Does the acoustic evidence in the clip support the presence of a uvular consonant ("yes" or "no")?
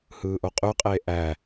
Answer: yes